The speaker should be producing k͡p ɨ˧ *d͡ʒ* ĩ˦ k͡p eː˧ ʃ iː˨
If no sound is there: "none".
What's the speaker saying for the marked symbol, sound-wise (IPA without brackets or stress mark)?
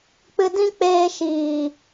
d